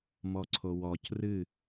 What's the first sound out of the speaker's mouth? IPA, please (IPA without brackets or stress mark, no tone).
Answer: m